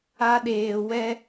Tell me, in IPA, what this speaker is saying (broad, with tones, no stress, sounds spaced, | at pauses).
a˦ ɗ eː˧ w ɛ˦